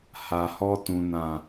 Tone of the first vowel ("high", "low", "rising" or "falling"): low